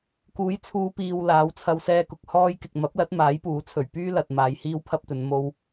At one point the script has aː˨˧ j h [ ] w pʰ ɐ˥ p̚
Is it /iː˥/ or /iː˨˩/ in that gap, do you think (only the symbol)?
iː˥